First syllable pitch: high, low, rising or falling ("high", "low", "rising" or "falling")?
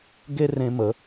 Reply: high